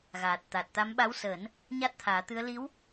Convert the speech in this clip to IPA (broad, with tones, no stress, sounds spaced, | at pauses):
ɣ aː˨˩ t̚ t̪ a˨˩ t̚ t̪ a˧˥ m ɓ a˧˥ w s əː˨˩˦ n | ɲ a˦˥ t̚ t̪ʰ aː˨˩˦ t̪ ɨ˧˥ ə̯ l i˧˥ w